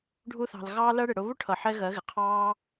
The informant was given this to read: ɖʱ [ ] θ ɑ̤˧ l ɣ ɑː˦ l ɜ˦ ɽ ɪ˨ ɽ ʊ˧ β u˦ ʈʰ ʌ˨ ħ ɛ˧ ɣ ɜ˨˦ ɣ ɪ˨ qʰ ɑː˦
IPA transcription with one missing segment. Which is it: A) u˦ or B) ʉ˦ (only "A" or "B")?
A